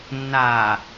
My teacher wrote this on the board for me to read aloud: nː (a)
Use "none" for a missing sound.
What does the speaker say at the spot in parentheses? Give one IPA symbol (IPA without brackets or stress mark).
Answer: a